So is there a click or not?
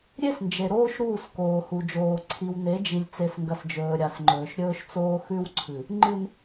yes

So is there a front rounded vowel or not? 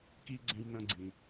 no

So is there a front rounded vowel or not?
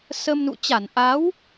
no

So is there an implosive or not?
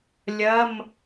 no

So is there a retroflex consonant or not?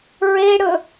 yes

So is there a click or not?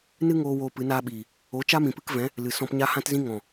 no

